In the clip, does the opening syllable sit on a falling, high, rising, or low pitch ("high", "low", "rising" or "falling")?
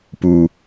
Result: low